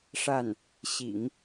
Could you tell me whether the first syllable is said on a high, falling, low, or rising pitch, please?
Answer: falling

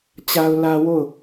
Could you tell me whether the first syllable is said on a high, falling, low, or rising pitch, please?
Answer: high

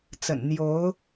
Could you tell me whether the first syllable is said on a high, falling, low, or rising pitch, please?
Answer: low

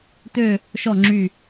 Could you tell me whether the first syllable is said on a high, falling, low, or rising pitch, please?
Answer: falling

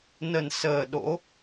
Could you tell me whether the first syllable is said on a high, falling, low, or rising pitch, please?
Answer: low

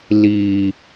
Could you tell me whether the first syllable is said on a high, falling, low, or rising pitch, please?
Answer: low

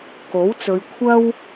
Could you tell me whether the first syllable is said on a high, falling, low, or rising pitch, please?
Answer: rising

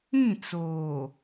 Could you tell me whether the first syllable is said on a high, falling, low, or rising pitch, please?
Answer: falling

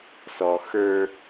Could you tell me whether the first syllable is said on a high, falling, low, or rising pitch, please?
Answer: low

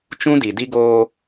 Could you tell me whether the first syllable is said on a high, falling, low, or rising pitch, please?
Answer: high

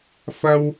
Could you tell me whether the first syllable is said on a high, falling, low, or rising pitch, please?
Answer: high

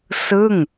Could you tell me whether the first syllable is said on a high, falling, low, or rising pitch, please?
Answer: falling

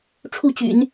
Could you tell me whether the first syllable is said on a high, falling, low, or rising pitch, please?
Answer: falling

